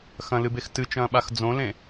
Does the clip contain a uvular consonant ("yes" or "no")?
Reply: no